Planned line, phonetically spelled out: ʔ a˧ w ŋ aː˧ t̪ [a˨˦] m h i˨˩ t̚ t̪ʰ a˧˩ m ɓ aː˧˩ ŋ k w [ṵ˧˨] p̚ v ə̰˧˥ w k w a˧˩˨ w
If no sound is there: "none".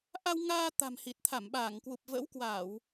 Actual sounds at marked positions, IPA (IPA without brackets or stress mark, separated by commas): a̤˨˩, u˨˩